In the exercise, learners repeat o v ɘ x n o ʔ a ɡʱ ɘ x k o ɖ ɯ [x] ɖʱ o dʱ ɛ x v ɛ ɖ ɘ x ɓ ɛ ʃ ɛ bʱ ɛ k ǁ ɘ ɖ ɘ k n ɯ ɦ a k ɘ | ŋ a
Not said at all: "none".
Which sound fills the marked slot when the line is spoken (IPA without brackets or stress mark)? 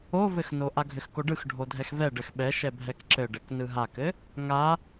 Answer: x